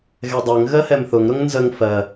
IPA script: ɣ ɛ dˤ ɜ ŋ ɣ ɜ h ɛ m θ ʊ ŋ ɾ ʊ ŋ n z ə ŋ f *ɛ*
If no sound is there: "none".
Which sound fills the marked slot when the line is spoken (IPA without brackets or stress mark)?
ɜ